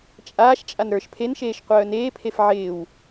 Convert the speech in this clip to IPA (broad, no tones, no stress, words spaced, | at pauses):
t͡ʃʼaːʃt͡ʃʼan ɾə˞ʃ pʰenʃeːʃ qʷœːneːpʰef ʕɪːw